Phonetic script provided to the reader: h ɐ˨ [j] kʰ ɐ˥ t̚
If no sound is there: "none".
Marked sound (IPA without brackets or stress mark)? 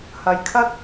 j